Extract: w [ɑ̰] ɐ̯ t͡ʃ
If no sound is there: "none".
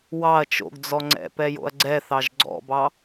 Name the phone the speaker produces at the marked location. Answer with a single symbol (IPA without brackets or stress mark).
ɑ